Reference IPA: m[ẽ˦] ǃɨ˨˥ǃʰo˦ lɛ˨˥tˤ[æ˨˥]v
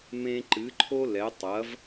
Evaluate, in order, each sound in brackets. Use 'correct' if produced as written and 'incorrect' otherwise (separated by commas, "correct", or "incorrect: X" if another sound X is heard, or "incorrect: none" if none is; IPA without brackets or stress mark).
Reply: correct, incorrect: ɐ˨˥